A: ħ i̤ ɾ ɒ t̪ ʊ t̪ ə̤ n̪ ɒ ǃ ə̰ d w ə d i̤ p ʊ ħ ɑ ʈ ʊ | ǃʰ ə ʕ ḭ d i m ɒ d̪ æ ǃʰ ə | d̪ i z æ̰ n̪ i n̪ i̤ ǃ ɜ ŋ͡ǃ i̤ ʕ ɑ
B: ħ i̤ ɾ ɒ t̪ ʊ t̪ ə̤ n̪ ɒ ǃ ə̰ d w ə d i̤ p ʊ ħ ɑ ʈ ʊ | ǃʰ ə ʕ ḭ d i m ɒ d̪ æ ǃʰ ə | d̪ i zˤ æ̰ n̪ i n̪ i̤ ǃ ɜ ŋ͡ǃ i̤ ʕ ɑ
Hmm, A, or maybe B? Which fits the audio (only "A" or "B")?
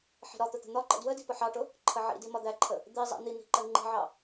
B